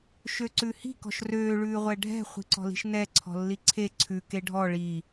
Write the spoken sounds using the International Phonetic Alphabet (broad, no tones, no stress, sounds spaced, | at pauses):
ʃ ø ǀ ʉ h i̤ k ɔ̤ ʃ r øː ɭ ʉː ʁʷ ɛ ɖʱ ɛ̤ χʷ i̤ ǀ ɔ̤ l i̤ ʃ n ɛ ǀʰ ɔ̤ lː i ǀʰ e ǀʰ ʉ k e ɖʱ ɔ ɭ i